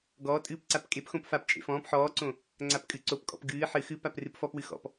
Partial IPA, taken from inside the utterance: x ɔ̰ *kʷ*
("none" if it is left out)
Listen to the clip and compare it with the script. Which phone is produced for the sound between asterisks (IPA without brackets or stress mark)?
p